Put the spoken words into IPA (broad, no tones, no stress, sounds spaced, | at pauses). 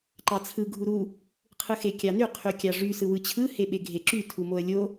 ǃ ɑ t͡sʰ ɯ ɡʱ u ɾ u | qʰ ɯ x e kʲ ɑ n y qʰ y kʲ ɑ ʐ y s ɯ w ɯ t͡ɕʰ ɯ h e ɓ e ɡʱ e ǁ y tʰ u m o ə̯ lʲ o